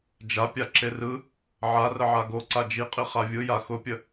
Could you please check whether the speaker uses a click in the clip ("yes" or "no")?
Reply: yes